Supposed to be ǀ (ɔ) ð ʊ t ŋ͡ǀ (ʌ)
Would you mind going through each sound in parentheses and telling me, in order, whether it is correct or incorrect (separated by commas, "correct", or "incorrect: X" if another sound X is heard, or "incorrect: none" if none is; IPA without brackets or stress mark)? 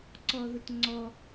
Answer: correct, incorrect: ɔ